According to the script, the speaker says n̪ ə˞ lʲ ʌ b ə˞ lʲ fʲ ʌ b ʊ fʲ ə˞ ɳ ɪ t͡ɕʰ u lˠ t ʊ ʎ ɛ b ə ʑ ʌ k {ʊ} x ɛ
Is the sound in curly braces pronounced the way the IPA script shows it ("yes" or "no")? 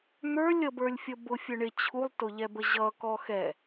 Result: no